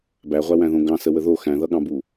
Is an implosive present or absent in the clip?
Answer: present